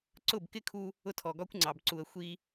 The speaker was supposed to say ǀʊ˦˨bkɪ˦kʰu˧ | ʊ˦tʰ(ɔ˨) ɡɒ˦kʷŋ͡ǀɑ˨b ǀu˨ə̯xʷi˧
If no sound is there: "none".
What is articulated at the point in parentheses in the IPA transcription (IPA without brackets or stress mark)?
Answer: ɔ˨